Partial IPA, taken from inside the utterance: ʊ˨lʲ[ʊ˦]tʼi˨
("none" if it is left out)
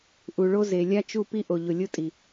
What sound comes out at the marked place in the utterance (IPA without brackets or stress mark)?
ʊ˦